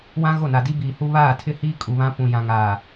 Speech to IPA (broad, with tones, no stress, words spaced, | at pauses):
wã˦ ɣo˦˨na˨ di˦biː˨hu˦ βaː˦˨tʰɪ˦hiː˦ kʼu˨βã˦pũ˨ jã˨ŋaː˨